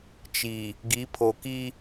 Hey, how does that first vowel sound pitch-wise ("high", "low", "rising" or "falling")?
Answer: low